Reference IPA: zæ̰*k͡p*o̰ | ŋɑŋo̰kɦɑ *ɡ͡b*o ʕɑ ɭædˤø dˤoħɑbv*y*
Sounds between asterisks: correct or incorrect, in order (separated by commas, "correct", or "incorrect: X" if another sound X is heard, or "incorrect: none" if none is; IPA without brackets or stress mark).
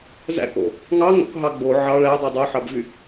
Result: incorrect: k, correct, correct